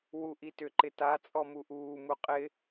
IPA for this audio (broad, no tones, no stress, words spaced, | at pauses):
wuʔitʏ ǃɪta t͡sʼɔmuʔuː muqʼɪ